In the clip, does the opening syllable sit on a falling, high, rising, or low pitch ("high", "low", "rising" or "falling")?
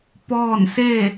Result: falling